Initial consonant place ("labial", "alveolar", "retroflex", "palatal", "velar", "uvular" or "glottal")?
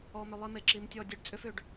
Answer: labial